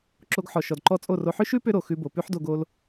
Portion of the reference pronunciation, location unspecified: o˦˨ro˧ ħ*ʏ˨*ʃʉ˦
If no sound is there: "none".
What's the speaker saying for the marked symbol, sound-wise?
ʏ˦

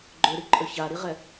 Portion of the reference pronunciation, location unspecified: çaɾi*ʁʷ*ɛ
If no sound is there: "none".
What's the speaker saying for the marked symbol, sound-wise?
ʁ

